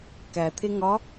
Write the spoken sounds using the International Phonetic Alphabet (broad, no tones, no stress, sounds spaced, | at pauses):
k æ t̪ʰ e ŋ ɒ